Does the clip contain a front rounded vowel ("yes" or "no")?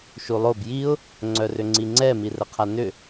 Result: yes